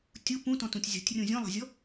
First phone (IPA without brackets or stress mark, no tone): tʲ